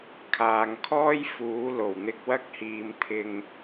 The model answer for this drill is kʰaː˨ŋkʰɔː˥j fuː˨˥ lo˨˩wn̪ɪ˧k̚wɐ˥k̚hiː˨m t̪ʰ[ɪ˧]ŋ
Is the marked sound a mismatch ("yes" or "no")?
no